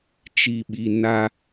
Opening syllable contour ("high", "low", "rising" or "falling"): low